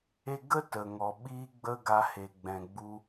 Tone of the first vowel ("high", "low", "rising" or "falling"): high